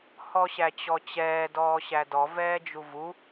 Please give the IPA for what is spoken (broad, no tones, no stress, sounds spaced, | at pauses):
h ɔ ɕ æ t͡ɕ ɔ t͡ɕ ɛː d ɔː ɕ æ d ɔ v ɛː d͡ʒ u v u